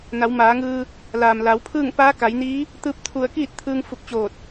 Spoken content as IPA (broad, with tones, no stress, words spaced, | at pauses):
na˩˧wmaː˩˧ŋɯː˧ | laː˩mla˩˧wpʰɯː˥˨ŋ paː˧˥ka˩˧jniː˧˥ | t̪ɯː˧˥p̚t̪ʰu˧˩ə̯ kiː˥˨t̚t̪ʰɯː˧ŋ fu˧˩k̚t͡ɕoː˧˩t̚